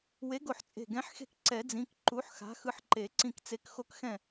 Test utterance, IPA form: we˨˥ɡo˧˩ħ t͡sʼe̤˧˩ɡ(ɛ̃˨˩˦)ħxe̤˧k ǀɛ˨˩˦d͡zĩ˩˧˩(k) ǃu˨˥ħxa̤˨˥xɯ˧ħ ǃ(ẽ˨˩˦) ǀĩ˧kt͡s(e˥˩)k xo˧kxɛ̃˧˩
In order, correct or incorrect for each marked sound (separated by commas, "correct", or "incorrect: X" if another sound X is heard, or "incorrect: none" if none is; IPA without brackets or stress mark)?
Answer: incorrect: ɛ̃˨˥, correct, incorrect: e˨˩˦, incorrect: e˨˥